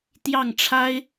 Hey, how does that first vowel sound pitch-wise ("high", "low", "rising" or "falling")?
falling